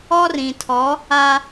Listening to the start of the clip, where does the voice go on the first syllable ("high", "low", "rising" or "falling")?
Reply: high